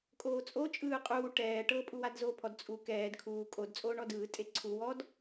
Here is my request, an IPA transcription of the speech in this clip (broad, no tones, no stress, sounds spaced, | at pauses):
kʼ oː t͡sʼ o t͡ʃʼ ɯː qʼ uː ʈ ɛː ʈ ɤ pʼ u w a d z oː pʰ ɔ d t͡sʼ u k ɛː d kʰ uː kʼ o d t͡sʼ oː ɳ ɔ d ɯː tʼ e ǀʰ u w ɔ d